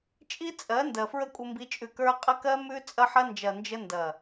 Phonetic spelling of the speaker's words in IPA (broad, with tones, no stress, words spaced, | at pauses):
t͡ʃʼi˦t͡sʼɜ˨˦ ndɜ˨fɹə˦kʷʼə˧mbi˧ t͡ʃʼʉ˨kə˞˧ qʼə˧kɜ˧ mʉ˧t͡sʼɐ˧ħɐ˧nd͡ʒɐ˨ nd͡ʒə˧ndɐ˨